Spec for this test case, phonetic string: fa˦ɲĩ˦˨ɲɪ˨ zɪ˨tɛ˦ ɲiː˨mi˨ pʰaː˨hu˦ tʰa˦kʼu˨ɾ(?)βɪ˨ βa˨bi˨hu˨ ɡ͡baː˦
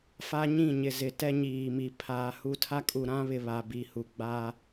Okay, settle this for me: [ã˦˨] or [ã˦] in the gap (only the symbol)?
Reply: ã˦